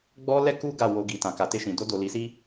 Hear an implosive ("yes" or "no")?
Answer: no